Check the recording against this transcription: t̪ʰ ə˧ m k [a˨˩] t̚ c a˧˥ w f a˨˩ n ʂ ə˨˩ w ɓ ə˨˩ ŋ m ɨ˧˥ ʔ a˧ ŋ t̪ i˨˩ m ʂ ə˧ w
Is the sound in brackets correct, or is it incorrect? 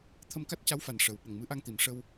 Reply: incorrect